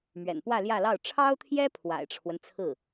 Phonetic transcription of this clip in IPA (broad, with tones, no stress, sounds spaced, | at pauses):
m ɥ ɛ̰˨˩ n p w ä˥˧ l j ä˥˧ l ɑ˥˩ ʊ̯ ʈ͡ʂʰ ɑ˥ ʊ̯ t̪ʰ j ɛ˥ pʰ w a̰˨˩ ɪ̯ ʈ͡ʂʰ w ə˦ n t͡sʰ ɹ̩˥˩